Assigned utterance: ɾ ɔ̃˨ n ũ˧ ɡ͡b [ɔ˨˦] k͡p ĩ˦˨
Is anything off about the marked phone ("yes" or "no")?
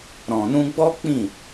yes